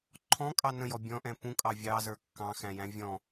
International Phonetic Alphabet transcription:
ǃʰɔ̃kʼɑ nə̃jɔ bʲɔ̃ʔɛ̃ pũkʼɑ vʲɑzə˞ kːɑ̃xæ̃jæ̃ vʲɔ̃

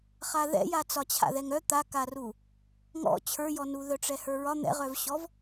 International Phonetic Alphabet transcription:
χaðɛ̰ja t͡sɒt͡ɕʰa̰ðɛŋœ t̪akaru | ŋɔ̰ t͡ɕʰə˞jɔnu ðœʈ͡ʂɛhə˞ɹɒ n̪ɛ̰ʁœvɕɔv

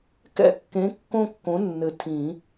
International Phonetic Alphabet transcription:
kɛ̰˦˨kːẽ˩˥ kːõ˦˨kːõ˩˥ nːɘ˨ tʰĩ˨˩˦

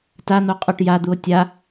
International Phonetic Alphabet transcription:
tan̪o qʼœʈjad̪uo̯ tʲa

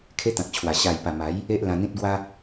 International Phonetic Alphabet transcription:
kʰe˦t̪ã˨k̚ t͡ɕʰwa˨˩ ɕa˨˩jpa˨˩ ma˨˦j | e˦ʔlã˧n̪ĩ˦t̚ ɡwa˦

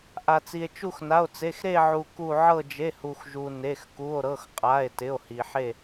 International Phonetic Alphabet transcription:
ʔa˧t͡si˧e̯ t͡ʃu˥˧xna˧˥˧o̯t͡se˧˥˧x ɾe˥˧ʕu˧ ku˥˧ ʕɤ˥˧d͡ʒe˧˥˧hu˧xʒu˧ ne˧˥˧xku˧˥˧o̯ɾɤ˧˥˧x qʼa˧˥˧e̯tɪ˧˥˧o̯hi˧ħe˥˧

